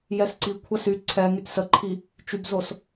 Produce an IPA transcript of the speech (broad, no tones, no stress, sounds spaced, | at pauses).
j ɛ s ǀ i kʷʰ ə s y ǀʰ ɛ ŋ y t s ə ǃʰ i | t͡ʃ y b z o s